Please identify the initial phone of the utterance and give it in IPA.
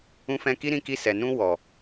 ũ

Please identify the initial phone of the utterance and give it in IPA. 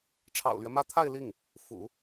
ʈ͡ʂʰ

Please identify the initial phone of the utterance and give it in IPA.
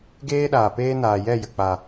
ɡ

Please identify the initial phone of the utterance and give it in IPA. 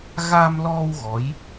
ɣ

